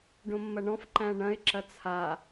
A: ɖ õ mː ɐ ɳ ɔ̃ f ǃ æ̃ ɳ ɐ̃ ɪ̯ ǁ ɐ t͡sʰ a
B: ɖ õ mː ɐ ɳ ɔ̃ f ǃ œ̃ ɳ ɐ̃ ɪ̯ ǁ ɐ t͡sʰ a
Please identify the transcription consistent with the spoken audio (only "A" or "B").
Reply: A